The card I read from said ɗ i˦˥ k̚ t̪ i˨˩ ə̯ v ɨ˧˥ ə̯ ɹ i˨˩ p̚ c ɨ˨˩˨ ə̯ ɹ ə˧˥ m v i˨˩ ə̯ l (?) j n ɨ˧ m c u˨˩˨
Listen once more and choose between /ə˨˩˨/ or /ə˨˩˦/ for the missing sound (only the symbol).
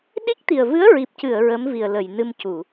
ə˨˩˨